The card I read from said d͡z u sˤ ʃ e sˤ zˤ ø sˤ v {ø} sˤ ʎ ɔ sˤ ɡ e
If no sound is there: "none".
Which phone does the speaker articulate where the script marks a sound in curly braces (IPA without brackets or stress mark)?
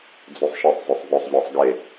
ɵ